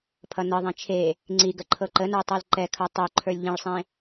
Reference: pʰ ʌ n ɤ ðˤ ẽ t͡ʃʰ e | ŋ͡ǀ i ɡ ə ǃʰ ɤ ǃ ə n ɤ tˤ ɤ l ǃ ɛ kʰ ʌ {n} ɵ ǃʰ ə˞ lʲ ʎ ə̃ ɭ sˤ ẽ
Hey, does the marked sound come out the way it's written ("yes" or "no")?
no